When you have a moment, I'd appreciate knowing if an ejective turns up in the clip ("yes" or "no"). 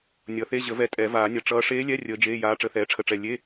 yes